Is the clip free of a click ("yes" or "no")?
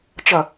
yes